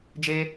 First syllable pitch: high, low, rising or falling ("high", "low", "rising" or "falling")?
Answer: high